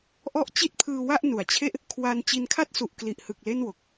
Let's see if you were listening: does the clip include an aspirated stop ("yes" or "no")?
yes